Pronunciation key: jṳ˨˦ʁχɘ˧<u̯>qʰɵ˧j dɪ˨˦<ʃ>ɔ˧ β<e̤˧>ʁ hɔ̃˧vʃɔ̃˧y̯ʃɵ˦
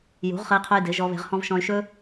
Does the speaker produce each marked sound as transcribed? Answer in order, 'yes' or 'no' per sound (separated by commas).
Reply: no, no, yes